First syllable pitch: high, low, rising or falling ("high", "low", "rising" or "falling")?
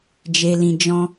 low